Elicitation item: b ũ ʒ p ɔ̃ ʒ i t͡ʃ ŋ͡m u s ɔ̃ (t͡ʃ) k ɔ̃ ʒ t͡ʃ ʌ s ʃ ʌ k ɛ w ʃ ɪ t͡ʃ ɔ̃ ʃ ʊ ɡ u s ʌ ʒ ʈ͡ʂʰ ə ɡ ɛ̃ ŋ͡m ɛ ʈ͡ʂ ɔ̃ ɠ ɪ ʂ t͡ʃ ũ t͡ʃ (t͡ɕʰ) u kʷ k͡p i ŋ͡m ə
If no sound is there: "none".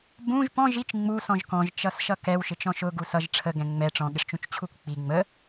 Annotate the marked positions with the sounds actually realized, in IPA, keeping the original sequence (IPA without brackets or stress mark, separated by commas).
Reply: ʒ, t͡ɕʰ